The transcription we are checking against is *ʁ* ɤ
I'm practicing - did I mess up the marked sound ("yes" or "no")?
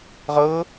no